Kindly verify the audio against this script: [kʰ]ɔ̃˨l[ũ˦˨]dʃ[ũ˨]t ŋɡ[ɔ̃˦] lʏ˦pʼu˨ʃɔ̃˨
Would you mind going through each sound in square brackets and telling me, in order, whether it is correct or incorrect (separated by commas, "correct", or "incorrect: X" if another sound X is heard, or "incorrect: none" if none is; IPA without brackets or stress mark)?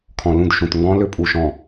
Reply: correct, correct, correct, correct